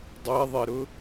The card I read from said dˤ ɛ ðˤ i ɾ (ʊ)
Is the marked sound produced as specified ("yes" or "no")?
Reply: yes